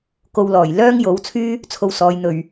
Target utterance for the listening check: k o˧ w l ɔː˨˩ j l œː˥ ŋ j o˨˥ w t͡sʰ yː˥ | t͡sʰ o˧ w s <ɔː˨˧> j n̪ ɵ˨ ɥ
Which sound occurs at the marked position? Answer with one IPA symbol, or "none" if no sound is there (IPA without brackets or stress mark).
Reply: ɔː˨˧